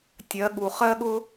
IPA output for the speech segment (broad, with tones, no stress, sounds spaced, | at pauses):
tʲ ɜ˨˦ ɠ u˨ χ ɜ˦ ɠ ʊ˦